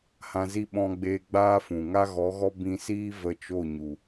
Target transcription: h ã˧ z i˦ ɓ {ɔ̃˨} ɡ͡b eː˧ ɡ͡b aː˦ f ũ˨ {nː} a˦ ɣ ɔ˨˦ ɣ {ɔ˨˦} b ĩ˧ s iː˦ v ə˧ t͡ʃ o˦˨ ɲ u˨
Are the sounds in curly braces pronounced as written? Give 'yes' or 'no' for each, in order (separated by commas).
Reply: no, no, no